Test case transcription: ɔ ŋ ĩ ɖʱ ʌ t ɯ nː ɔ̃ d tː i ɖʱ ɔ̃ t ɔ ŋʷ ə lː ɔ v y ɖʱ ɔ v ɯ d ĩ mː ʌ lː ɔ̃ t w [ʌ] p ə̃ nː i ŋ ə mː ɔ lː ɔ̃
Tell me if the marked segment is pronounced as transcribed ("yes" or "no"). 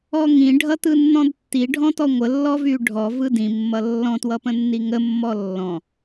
yes